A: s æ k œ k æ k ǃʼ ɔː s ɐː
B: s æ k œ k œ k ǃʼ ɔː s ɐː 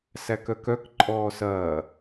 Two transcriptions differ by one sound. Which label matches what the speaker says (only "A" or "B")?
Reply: B